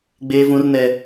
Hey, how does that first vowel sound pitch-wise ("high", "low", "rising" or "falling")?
high